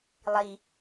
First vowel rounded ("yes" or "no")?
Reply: no